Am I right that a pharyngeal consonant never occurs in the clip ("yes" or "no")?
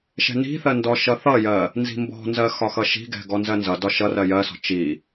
yes